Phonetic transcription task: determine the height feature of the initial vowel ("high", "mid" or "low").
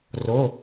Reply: mid